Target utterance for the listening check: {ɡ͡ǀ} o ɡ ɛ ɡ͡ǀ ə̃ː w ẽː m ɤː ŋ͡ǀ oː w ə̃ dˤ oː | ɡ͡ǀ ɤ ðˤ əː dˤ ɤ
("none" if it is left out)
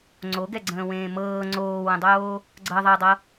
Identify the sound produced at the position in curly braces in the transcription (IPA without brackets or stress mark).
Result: ŋ͡ǀ